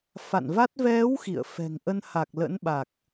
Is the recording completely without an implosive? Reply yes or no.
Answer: no